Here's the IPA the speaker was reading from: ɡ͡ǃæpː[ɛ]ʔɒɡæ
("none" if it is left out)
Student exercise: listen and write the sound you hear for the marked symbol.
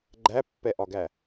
ɛ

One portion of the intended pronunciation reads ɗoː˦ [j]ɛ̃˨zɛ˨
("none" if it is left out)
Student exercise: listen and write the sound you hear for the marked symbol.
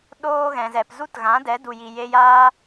ɣ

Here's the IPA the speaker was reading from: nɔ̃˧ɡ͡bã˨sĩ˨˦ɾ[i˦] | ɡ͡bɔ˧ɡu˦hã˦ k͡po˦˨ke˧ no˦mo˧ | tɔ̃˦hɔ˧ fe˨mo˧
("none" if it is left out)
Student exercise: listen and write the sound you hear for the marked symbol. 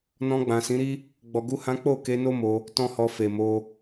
i˦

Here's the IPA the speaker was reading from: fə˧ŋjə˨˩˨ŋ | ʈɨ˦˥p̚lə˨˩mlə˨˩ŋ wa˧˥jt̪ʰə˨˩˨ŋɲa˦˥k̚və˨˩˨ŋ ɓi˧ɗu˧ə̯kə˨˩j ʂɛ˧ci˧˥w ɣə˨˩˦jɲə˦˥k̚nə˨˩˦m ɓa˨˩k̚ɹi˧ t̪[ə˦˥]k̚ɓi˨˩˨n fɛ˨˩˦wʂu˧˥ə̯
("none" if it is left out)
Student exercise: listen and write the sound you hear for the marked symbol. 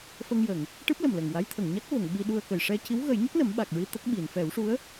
ə˦˥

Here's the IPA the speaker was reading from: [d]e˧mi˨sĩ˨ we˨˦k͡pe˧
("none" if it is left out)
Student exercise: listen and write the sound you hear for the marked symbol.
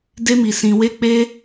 d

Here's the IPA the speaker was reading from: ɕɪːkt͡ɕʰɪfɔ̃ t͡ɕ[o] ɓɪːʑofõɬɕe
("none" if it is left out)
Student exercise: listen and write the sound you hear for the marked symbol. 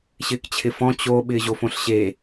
o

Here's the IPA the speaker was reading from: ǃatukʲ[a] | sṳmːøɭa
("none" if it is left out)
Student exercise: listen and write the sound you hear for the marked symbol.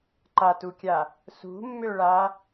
a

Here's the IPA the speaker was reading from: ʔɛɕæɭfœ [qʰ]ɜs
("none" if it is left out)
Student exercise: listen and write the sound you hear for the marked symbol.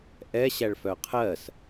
qʰ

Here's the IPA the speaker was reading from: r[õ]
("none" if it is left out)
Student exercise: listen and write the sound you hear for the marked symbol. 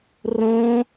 õ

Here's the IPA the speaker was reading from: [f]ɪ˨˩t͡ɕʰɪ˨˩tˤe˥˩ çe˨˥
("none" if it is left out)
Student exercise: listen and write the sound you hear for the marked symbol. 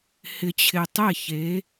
h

